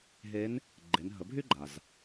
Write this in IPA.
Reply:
ɦ e˧˥ n | ɡ͡ǃ e˩˧ n ɦ ə˩˧ bʱ y˥ ɡ͡ǃ a˩ z

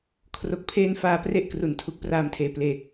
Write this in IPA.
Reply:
kʰ r o˨˩ k̚ pʰ eː˧ n f aː˧ p r e˥˩ ʔ k r u˨˩ n tʰ u˦˥ k̚ p r aː˧ m tʰ eː˨˩ p l eː˨˩ k̚

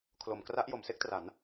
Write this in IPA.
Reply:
kʰ l o˩˦ m k r a˦˥ ʔ j o˩˦ m s e˥˩ k̚ t r a˩˦ n

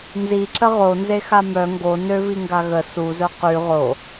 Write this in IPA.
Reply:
n z i ǁ ə ʁ o n z e x a m œ ŋ ɡ o n ø v i ŋ ɡ a ɣ ə s u z œ q y ʁ o

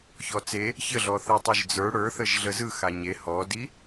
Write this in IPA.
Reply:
ç ɔ t͡s e | ç ə ɮ ɔ θ ɛ tˤ ə˞ ʒ d͡z ə˞ ɽ ə˞ θ ə ʒ ɮ ə z ɯ x a ɲ e h ɔ d i

